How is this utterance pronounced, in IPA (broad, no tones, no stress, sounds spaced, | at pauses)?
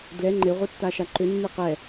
d l ɛ ŋ͡ǃ e ʁʷ e tː a ʃ a ǃ ʏ nː ɯ q ɛ